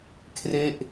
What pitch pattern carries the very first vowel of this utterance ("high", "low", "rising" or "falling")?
falling